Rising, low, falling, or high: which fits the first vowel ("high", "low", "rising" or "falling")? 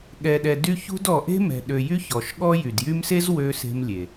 low